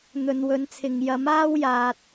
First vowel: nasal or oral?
oral